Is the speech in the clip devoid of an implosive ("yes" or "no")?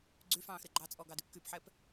yes